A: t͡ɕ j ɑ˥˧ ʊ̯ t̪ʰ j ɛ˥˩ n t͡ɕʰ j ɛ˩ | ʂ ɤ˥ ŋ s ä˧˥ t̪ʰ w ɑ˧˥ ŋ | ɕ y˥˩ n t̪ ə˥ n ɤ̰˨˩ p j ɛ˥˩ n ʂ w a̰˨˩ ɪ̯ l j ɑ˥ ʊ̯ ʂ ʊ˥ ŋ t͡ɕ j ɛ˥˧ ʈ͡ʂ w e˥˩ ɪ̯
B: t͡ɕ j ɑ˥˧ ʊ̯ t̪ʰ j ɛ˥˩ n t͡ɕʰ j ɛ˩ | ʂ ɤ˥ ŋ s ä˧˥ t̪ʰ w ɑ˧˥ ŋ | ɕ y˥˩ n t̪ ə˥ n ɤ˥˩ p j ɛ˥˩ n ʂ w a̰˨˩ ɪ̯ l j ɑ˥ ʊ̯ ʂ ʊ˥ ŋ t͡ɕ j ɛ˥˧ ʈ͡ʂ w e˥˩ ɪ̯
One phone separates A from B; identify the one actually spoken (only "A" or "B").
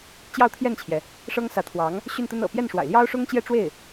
A